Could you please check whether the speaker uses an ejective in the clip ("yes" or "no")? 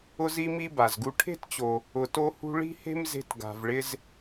no